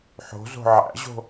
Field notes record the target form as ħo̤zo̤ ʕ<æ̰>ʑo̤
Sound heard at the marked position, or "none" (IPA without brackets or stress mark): æ̰